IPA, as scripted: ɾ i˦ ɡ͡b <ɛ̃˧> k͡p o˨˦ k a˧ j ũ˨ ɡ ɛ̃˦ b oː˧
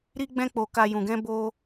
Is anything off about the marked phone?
yes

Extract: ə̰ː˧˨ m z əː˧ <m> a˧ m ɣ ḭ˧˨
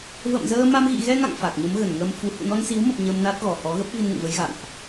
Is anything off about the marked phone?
no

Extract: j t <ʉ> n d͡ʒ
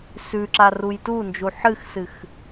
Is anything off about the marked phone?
yes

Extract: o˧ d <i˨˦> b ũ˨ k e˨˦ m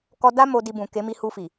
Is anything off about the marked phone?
yes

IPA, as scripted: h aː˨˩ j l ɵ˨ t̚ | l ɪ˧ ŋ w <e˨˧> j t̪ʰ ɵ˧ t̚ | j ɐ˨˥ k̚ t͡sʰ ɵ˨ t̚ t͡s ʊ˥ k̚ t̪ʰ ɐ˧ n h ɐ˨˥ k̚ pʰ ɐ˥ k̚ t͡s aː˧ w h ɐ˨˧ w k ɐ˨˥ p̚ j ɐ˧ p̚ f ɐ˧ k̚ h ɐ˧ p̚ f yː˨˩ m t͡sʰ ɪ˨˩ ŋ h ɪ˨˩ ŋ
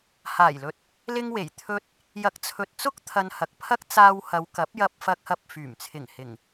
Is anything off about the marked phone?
yes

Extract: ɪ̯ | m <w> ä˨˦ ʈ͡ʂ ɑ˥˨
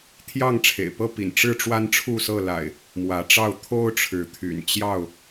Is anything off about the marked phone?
no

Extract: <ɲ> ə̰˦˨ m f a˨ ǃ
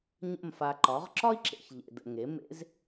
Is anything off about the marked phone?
no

